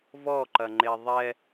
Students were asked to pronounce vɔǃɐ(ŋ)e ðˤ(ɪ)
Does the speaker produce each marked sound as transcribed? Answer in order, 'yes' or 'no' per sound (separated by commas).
no, no